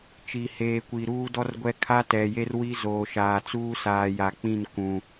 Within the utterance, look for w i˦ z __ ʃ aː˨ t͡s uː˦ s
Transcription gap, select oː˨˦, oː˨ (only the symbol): oː˨